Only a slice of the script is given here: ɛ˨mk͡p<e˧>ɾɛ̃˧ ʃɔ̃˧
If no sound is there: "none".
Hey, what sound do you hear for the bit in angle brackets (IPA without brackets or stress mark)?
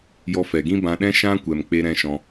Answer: e˧